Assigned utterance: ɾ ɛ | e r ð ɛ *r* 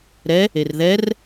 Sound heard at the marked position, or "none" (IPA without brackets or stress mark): r